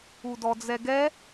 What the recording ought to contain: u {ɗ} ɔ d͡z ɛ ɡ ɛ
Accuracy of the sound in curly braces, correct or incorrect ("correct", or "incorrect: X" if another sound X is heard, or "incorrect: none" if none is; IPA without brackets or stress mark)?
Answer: incorrect: d